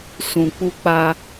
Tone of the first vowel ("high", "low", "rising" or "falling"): low